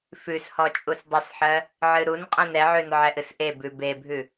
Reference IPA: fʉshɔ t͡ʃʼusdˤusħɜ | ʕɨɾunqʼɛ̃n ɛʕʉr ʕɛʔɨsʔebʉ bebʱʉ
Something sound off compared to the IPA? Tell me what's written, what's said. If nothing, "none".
r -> n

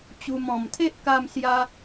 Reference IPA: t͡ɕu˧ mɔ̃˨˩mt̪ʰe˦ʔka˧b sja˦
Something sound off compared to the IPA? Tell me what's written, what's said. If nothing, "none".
b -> m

